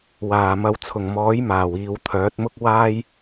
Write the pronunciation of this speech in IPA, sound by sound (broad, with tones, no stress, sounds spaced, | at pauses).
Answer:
w aː˨˩ m ɐ˧ w t͡sʰ ʊ˨˩ ŋ m ɔː˨˥ j m aː˨˩ w iː˨ w t̪ʰ œː˨˥ t̚ m ʊ˥ k̚ w aː˥ j